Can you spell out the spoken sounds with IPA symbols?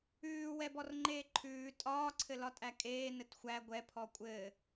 ʉː w ɛ b ɔ r ŋ͡ǃ eː ǃʰ ʉː tʼ ɒː ǀʰ ɘ l ɒ tʼ æ kʼ eː n ɘ t xʷ æ ɡʷ ɛ pʰ ɔ kʷʼ ɘː

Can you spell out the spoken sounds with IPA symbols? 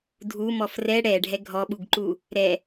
dʱ u m ɔ f r ɛ ɽ ɛ ɖʱ ɛ ɡʱ ɔ ɓ u ɡ ǃ u | ɾ ɛ

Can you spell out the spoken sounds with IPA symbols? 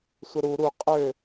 sʷ ə ɾ u ɾ u qʼ ø

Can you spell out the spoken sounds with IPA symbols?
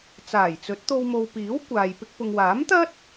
t͡s aː˨˩ j t͡s ɵ˨˥ t̚ t̪ o˧ w m o˨ w p iː˨˥ w kʷ aː˨ j p ɪ˧ k̚ p ʊ˨ ŋ w aː˨˥ m t̪ ɐ˥ t̚

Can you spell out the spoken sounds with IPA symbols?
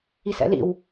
i s ɛ̰ l ḭ w

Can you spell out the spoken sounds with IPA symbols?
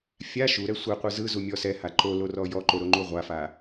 fʲ a ʃ u ɾ ɛ sʷ ɛ qʷ ɯ z ɯ z u mʲ ɔ s ɛ h a ǃ o l o r ɔ j ɔ ǃ o ɾ o ŋ͡ǃ u ʁʷ a f a

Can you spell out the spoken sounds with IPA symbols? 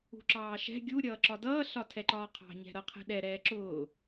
ṳ ǁ ɑː ʃ ɛ̤ ɡʲ u ɾʲ ʌː ǁ ɒ d ʌː ɬ ɒ tʰ ɛ ǃ ɒː qʰ ɑ̤ ɲ ɛ̤ ɾ ʌ qʰ ɛ̤ ɗ ɛ ɾ ɛː ǁ ʊː

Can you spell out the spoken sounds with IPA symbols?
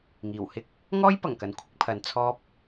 ŋ iː˨˩ w h ɪ˥ k̚ | ŋ ɔː˥ j p ɐ˨˩ ŋ k ɐ˨ n kʷʰ ɪ˨˥ k̚ pʰ ɐ˨ n t͡sʰ ɔː˧ p̚

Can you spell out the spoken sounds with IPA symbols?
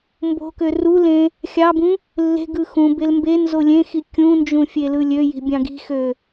m b o̤ k ø r u l ẽ | xʲ ɑ b ũ | lː e̤ ɡ ɯ x ũ b e l m b e n z o lʲ ẽ x i kʲ ũ n d͡ʒ ũ fʲ e l ɯ lʲ ø j i̤ bʲ ɑ̃ ɡ i̤ x ø

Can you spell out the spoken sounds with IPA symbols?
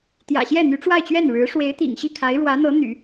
t̪ j ä̰˨˩ ɕ j ɛ˥˩ n̪ y˧˥ ʈ͡ʂ w a˥˧ ɪ̯ t͡ɕ ɥ ɛ˥˩ n ɻ ɻ̩˧˥ ʂ w e˧˥ ɪ̯ t̪ ḭ˨˩ ŋ ɕ i˥˩ kʰ a˧˥ ɪ̯ ɻ w ä˧˥ n̪ ɤ˧˥ n̪ y̰˨˩˦

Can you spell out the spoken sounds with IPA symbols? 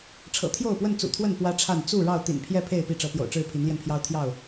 ʈ͡ʂʰ ɤ̰˨˩ t̪ʰ j o˥˨ ʊ̯ p w ə˥˨ n t͡s ṵ˨˩ t̪ʰ w ə˥˨ n p w ä˦ ʈ͡ʂʰ a˥˨ n t͡s u˥˨ ɻ ɑ˥˨ ʊ̯ t̪ ḭ˨˩ n pʰ j ɛ˥˨ pʰ e˥˨ ɪ̯ p i˥˨ ʈ͡ʂ ɤ˨˦ p j o̰˨˩ ʊ̯ ʈ͡ʂ ɻ̩˥˨ pʰ i˨˦ n l j ɛ˧ n pʰ j ɑ˦ ʊ̯ t̪ʰ j ɑ˥˨ ʊ̯

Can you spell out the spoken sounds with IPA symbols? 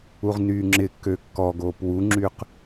u ʁ n yː ŋ͡ǁ ɪ kː ø kː ɔ ɡ oː p w u ŋ͡ǁ yː q

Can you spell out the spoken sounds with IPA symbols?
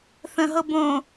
θ ə̃ ɦ ɤ b õ

